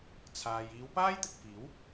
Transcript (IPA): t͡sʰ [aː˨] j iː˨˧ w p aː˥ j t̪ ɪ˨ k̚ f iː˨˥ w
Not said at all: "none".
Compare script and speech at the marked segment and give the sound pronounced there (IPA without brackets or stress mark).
aː˨